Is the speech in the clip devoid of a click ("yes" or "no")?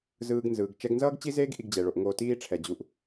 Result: yes